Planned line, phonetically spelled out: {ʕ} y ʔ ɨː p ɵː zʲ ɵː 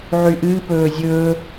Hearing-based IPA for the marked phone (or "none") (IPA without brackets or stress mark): ʕ